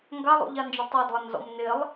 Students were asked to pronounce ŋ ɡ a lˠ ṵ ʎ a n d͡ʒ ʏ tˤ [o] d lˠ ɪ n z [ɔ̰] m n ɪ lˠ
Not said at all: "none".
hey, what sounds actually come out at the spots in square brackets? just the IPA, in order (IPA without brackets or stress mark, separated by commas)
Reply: o, ɔ̰